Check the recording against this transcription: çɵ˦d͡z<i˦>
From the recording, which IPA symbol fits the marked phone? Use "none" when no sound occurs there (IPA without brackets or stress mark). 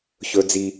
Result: i˦